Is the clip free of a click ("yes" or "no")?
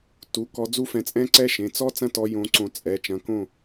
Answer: no